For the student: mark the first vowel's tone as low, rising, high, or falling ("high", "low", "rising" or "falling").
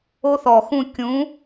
high